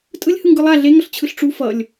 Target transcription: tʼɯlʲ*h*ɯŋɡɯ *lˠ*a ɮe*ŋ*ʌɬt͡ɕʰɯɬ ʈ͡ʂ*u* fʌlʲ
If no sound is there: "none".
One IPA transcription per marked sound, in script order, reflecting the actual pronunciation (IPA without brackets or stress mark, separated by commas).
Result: h, lˠ, ŋ, u